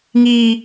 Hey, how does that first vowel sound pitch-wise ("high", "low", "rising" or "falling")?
high